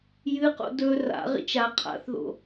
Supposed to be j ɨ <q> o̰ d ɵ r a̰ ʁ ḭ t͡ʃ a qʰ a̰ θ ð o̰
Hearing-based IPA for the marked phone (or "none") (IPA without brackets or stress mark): q